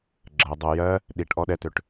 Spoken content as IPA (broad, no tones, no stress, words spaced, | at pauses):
ɡ͡ǁɜ dˤɤ jɜ | ɗiʈ ʔɔɗɛtøʈ